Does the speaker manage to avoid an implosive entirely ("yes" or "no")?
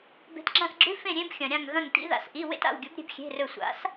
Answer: yes